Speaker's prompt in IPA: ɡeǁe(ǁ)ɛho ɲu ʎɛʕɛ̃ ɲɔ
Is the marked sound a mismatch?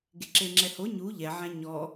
yes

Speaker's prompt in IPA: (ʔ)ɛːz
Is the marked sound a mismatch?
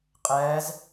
yes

